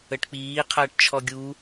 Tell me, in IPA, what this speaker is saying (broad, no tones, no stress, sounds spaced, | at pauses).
ə ʈ k͡p iː qʰ ɐː ʈ t͡ʃʰ ɔ ɡʲ u